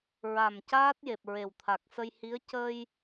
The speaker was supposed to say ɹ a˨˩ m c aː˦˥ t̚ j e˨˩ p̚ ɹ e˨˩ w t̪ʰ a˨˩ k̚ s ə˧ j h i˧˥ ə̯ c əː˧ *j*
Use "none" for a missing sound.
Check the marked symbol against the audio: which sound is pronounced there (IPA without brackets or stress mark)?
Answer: j